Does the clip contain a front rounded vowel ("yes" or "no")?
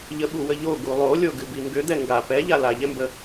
yes